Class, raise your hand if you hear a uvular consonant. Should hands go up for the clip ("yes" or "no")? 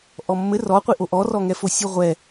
yes